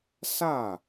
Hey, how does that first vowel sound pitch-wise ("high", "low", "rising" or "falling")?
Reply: falling